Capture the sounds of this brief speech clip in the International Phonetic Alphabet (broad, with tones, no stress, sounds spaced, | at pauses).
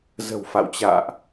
z ə̤˨˩ w f a̰˧˨ w t͡ɕ a̰ː˧˨ ʔ